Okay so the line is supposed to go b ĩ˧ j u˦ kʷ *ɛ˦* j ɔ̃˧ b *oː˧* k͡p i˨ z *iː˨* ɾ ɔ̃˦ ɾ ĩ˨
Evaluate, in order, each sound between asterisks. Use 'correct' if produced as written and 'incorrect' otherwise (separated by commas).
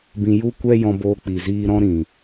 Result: correct, correct, incorrect